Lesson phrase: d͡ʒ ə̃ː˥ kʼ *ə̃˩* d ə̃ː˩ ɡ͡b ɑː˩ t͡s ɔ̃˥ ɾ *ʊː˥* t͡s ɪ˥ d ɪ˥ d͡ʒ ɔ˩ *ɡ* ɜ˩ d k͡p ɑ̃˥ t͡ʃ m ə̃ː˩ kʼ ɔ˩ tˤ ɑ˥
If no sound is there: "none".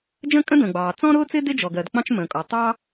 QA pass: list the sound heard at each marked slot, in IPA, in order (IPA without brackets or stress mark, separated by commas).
ə̃˥, ʊː˥, ɡ